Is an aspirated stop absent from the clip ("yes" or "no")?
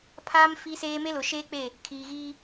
no